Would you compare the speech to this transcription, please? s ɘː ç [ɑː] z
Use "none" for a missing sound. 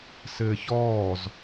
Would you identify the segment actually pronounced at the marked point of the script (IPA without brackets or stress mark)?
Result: ɔː